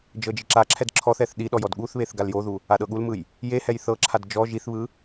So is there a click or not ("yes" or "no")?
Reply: yes